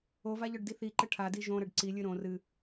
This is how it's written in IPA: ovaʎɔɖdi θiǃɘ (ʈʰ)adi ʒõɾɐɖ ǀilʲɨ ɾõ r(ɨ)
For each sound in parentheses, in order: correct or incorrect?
correct, correct

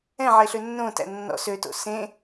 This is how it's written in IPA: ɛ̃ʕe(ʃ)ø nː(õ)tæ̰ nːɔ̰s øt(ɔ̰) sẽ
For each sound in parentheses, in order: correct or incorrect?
incorrect, correct, incorrect

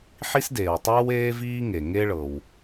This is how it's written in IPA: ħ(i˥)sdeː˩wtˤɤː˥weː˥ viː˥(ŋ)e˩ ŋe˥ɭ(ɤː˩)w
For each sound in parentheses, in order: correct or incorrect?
correct, correct, incorrect

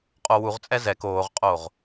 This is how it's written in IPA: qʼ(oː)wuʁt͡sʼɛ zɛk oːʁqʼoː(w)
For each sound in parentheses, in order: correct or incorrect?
incorrect, incorrect

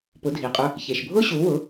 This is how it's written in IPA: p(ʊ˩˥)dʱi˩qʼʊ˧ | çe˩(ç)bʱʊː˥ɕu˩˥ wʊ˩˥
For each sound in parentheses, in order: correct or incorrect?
correct, incorrect

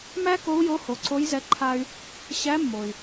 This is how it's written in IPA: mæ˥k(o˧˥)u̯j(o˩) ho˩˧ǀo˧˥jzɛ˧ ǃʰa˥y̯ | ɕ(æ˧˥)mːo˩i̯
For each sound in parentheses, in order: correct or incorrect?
correct, incorrect, correct

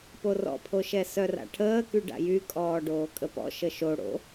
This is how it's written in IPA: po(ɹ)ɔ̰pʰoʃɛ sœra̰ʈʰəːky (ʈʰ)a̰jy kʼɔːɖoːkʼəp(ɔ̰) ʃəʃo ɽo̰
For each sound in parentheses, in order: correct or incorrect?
incorrect, incorrect, correct

